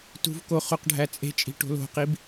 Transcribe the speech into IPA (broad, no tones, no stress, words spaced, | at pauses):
tṳvko χoqɖʱæt͡sʼe̤t͡ʃʼi̤ ʈo̤lo̤qib